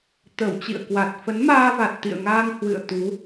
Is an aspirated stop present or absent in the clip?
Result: absent